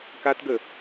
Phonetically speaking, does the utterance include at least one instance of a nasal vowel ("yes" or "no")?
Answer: no